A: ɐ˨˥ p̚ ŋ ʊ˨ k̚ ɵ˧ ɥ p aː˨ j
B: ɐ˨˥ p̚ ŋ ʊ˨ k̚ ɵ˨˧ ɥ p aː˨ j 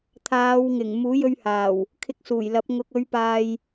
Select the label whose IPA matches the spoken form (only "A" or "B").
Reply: B